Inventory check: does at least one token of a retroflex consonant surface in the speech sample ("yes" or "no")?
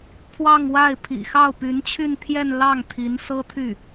no